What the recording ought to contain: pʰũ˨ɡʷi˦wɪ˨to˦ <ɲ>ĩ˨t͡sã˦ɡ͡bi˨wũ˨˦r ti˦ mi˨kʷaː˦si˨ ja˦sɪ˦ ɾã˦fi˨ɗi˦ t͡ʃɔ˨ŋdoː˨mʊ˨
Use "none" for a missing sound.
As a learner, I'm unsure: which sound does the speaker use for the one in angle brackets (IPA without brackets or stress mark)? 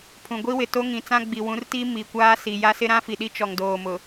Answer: ŋ